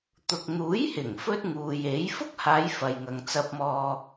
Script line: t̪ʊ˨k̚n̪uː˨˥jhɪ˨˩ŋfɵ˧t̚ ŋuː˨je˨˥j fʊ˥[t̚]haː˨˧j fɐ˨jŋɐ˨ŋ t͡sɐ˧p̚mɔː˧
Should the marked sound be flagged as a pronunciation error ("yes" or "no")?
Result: yes